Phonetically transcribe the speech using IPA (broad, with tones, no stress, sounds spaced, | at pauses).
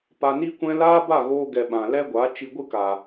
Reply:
p a˧ n i˦ kʷ ɛ̃˦ l aː˦ b a˦˨ ɣ oː˧ ɡ ɛ˨ ɓ ã˨ l ɛ˦ ɡʷ a˨˦ t͡ʃ i˧ ɡʷ ɨ˦ k a˨